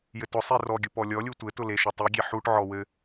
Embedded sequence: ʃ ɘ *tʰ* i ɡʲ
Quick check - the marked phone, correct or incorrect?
incorrect